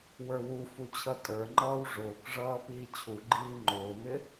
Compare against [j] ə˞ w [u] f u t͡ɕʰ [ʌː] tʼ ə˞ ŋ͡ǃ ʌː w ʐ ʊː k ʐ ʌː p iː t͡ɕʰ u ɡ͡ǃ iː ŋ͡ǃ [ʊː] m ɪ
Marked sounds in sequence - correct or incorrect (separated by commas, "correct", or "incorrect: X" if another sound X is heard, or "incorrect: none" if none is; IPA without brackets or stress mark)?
incorrect: w, correct, incorrect: ʌ, correct